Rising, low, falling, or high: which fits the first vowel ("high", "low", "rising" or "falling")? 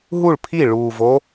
falling